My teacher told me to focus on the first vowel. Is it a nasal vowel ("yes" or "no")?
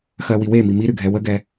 no